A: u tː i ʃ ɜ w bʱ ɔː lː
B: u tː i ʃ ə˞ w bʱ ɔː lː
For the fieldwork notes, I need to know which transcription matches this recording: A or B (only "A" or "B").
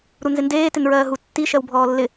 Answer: A